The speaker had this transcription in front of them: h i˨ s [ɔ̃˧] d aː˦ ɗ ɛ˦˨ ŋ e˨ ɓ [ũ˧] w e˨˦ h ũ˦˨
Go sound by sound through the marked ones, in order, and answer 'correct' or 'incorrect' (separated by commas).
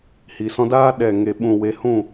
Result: correct, incorrect